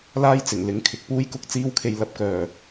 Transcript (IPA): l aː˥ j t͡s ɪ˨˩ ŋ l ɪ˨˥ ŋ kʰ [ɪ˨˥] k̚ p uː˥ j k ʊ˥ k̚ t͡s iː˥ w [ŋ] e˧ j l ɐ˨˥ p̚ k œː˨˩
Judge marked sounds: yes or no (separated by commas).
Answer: no, no